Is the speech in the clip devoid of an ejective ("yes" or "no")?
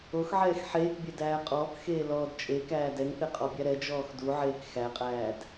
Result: no